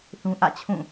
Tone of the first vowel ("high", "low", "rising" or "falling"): high